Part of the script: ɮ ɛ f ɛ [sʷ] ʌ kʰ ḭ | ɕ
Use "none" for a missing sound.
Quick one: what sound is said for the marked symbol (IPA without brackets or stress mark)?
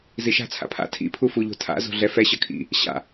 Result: ɕ